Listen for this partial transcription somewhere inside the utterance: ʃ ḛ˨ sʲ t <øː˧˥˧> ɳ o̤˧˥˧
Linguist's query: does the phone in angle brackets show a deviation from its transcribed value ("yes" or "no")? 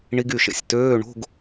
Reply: no